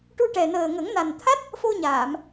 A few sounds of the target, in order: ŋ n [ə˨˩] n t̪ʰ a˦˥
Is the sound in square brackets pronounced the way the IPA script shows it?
no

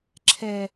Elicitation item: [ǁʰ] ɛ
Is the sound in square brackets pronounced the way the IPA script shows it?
yes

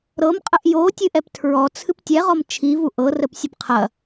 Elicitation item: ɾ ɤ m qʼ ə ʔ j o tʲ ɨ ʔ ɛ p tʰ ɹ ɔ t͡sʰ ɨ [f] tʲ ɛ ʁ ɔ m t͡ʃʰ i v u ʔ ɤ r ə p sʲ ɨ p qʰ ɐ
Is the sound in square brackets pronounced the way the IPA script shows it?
no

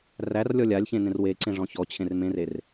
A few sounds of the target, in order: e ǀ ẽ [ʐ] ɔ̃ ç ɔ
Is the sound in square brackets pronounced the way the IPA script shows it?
yes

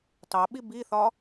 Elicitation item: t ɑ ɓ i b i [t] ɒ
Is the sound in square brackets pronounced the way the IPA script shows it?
no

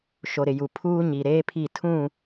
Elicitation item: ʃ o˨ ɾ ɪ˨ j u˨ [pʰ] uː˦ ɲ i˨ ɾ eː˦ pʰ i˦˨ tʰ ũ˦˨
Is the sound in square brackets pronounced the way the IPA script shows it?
yes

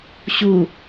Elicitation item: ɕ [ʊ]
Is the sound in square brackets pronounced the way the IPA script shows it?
no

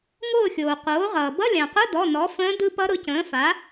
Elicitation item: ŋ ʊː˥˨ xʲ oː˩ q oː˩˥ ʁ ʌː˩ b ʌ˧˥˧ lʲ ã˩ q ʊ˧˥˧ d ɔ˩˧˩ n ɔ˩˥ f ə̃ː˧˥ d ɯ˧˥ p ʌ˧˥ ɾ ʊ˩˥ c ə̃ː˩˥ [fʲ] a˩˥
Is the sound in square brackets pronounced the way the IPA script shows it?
no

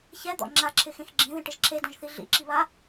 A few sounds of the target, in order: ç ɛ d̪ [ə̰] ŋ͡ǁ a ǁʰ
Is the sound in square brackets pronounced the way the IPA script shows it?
no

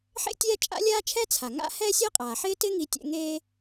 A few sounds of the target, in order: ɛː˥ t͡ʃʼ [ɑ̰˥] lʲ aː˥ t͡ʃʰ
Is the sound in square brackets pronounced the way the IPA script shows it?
no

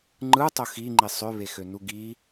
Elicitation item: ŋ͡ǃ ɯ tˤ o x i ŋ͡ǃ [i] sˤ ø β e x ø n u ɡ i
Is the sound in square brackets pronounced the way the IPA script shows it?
yes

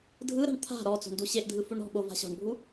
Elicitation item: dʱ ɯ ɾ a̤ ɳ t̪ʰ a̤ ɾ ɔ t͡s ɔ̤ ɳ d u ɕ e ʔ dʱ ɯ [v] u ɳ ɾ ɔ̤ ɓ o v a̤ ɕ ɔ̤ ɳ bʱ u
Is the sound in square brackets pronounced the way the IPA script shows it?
no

